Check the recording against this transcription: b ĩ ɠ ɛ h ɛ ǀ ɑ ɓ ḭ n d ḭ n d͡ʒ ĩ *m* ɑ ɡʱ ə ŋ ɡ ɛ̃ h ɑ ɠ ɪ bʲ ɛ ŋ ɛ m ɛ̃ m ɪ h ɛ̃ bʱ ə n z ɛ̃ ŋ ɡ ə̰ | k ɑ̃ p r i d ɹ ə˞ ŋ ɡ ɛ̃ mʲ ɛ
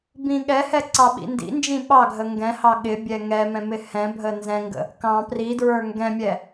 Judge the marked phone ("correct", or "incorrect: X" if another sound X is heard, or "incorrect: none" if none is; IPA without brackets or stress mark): incorrect: ɓ